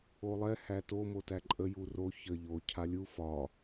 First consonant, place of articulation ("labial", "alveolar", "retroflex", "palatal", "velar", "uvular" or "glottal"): alveolar